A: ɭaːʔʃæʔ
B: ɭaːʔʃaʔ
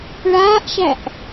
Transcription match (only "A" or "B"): A